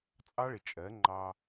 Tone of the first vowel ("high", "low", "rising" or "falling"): high